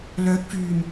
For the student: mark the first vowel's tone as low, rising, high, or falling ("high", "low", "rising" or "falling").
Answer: rising